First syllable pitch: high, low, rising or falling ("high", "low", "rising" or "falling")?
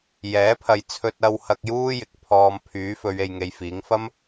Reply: rising